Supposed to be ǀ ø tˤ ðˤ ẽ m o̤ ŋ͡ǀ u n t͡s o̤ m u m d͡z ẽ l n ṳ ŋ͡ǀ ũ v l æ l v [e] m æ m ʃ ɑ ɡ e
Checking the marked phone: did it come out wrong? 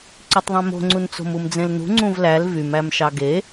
yes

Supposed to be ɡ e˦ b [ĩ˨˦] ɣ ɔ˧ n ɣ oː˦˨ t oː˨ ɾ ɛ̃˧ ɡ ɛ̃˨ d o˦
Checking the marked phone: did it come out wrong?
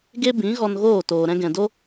no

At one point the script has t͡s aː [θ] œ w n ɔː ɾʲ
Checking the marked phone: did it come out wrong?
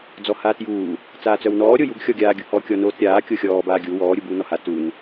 yes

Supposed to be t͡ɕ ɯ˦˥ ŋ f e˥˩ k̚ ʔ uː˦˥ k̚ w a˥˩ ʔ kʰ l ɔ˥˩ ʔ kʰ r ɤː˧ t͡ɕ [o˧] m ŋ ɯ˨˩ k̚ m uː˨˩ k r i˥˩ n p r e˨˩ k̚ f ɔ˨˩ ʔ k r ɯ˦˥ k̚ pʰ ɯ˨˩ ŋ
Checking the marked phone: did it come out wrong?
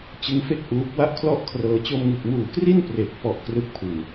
no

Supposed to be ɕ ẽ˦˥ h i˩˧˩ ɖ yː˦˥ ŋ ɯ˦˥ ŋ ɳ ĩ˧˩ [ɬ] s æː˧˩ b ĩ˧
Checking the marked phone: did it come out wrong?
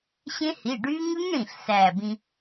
no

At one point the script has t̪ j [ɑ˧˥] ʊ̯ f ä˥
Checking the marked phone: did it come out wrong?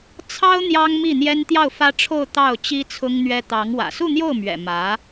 yes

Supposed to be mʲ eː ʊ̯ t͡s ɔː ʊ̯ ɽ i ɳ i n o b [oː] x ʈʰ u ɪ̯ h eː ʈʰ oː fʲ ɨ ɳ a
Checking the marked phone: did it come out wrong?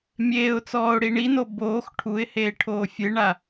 no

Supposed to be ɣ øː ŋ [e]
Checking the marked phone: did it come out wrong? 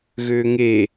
no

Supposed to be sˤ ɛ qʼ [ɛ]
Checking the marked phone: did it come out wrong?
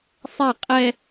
no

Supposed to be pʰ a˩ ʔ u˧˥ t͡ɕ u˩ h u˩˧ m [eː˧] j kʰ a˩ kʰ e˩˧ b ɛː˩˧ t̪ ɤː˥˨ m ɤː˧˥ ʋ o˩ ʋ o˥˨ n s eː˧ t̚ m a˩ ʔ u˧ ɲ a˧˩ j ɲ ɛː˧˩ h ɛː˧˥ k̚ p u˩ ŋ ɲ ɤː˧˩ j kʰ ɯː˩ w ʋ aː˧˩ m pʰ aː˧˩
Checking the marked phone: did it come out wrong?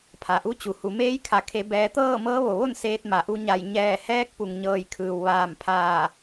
yes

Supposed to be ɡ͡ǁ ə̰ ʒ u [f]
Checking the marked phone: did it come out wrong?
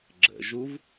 yes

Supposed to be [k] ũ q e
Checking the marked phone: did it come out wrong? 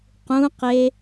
yes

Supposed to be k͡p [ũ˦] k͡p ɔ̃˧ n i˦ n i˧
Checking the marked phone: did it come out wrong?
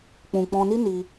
yes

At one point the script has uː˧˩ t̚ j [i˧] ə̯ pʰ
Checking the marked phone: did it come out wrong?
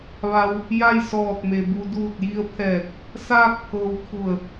no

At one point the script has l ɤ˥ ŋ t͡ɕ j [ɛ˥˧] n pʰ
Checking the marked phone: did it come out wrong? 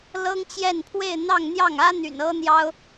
no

